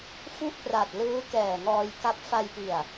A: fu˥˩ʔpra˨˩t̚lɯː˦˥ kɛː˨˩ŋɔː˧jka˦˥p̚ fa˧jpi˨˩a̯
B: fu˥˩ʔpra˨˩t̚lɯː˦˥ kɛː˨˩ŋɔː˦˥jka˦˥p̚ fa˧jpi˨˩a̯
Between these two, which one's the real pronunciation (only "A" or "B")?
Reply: A